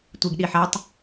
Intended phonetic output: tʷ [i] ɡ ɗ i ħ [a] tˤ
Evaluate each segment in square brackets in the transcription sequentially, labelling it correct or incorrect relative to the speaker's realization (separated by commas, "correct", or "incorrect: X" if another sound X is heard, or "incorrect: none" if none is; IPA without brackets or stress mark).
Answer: correct, incorrect: æ